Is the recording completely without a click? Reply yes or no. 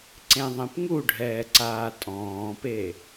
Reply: no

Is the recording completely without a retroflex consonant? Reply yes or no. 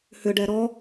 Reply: no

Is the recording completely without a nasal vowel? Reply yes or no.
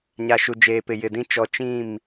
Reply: no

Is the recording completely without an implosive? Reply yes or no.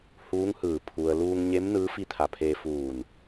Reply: yes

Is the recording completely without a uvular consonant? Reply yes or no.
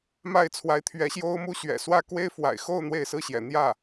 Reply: yes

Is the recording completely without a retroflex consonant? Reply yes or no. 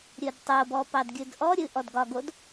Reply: yes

